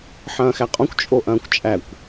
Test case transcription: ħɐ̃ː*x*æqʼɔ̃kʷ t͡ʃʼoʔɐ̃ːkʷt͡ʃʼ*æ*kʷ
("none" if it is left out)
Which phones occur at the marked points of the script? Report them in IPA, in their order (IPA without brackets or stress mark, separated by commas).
x, æ